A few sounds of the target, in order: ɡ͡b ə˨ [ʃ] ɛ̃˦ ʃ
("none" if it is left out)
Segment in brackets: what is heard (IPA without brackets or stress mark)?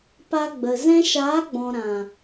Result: z